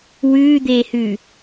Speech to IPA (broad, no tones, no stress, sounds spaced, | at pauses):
w ʉː d̪ eː h ʉ